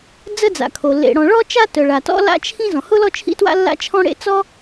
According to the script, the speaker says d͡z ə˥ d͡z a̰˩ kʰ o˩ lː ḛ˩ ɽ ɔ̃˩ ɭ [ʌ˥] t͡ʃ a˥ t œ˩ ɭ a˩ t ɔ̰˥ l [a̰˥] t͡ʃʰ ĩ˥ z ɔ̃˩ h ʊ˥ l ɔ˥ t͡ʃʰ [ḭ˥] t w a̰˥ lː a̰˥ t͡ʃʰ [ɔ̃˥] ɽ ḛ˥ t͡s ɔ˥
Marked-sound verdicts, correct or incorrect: incorrect: ɔ˥, correct, correct, correct

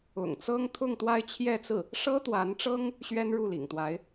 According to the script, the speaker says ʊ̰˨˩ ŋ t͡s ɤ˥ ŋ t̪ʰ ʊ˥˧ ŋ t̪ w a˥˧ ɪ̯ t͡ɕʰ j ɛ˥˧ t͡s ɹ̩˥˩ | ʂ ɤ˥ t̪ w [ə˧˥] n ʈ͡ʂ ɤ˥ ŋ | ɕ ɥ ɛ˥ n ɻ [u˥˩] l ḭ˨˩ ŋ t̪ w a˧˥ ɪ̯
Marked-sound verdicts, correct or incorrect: incorrect: a˧˥, correct

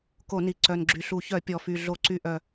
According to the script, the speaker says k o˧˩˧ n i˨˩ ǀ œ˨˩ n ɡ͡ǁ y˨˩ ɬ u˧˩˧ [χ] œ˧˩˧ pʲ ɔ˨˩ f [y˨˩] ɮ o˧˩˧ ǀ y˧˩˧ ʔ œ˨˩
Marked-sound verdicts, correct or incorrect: incorrect: ç, correct

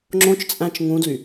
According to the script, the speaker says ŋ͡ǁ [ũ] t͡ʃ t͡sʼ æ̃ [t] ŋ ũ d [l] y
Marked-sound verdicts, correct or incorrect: incorrect: õ, incorrect: t͡ʃ, correct

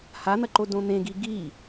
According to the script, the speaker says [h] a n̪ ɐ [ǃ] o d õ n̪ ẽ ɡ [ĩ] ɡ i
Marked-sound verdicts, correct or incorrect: correct, correct, incorrect: i

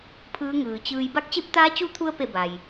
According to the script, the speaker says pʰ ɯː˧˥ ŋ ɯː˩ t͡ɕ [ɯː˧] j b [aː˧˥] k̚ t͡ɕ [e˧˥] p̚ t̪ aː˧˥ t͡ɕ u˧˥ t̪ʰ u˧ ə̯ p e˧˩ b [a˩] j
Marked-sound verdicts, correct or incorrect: correct, incorrect: a˧˥, correct, correct

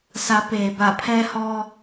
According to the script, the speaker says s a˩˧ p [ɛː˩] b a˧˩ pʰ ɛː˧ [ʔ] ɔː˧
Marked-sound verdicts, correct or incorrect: incorrect: eː˩, incorrect: h

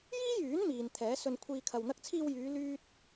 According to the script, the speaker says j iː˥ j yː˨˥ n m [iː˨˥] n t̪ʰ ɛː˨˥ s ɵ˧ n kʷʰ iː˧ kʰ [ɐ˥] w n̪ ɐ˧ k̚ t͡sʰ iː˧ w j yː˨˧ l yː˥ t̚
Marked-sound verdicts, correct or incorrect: incorrect: iː˨, incorrect: ɐ˨

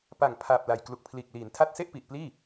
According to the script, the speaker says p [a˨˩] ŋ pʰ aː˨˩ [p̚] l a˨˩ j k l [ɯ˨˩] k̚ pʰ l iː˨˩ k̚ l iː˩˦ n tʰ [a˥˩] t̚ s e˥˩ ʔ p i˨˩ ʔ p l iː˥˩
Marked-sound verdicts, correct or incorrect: correct, correct, incorrect: u˨˩, correct

